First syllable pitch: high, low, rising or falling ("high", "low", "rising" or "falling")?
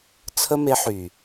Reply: high